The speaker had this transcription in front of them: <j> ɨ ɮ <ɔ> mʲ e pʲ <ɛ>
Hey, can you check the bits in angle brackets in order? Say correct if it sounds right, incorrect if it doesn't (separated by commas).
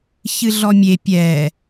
incorrect, correct, correct